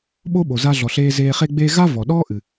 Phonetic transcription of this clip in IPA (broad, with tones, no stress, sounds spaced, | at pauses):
ɓ o˥ ɓ o˩ z a˧ ɮ ɔ˩ ɬ eː˧ z eː˧ χ e˥ ɡ͡b eː˥ ɣ a˥ v ɔ˩ ɗ ɔː˥ ʔ ɨ˩